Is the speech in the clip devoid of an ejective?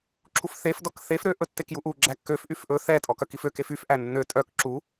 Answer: no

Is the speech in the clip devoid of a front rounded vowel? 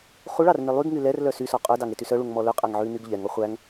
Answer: no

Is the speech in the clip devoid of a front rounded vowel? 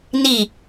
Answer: yes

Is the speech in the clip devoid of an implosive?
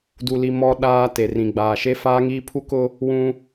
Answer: no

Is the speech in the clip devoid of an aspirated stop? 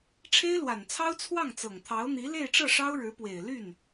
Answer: no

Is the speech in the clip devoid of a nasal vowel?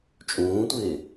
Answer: no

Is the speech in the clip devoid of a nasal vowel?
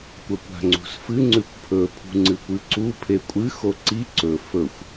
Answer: yes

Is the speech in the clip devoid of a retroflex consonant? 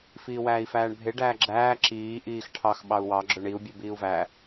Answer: no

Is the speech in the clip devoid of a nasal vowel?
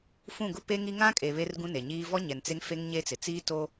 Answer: no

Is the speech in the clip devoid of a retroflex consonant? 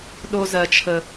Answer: yes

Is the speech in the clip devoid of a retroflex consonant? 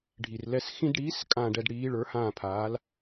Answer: no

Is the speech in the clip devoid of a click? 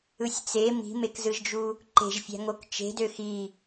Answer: no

